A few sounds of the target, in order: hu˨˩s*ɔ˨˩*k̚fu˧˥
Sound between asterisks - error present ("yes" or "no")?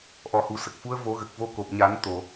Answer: yes